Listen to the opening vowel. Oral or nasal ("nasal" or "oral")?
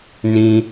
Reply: nasal